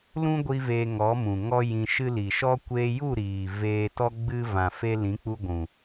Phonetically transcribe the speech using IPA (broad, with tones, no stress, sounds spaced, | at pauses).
l ũ˦ ɡʷ i˦ v e˧ ŋ ɔ˨˦ m ũ˨ ŋ ɔ˦ j ĩ˧ ʃ ɨ˦ l i˨ ʃ ɔ˦ kʷ eː˧ j u˦˨ ɾ iː˨ v eː˧ t ɔ˦ ɡ͡b ɨ˦ v ã˨ f e˧ l ĩ˨˦ k͡p u˧ ɡʷ ũ˨